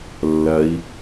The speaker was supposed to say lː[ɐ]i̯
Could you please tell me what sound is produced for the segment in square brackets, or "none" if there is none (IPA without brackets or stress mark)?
ɐ